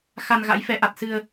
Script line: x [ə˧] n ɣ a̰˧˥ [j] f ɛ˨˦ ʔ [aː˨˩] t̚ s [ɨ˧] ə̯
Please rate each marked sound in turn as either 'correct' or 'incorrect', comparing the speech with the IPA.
incorrect, correct, incorrect, correct

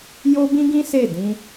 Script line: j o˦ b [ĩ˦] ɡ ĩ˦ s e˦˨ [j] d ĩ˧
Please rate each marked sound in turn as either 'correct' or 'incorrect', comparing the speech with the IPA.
correct, incorrect

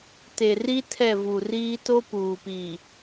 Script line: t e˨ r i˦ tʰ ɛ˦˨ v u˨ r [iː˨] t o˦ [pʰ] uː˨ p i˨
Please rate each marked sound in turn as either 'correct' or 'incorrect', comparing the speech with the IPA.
incorrect, incorrect

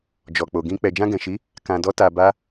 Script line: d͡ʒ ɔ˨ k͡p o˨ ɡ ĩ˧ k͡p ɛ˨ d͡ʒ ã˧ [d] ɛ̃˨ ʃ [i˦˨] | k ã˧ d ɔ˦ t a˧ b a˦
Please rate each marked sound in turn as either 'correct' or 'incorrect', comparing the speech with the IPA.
incorrect, incorrect

